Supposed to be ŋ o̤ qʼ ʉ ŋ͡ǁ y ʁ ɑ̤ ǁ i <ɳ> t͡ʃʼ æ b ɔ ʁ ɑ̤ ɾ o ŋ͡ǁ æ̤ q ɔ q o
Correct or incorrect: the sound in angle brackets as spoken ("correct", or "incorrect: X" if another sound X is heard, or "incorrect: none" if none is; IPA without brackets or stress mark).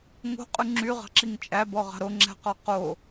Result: incorrect: ŋ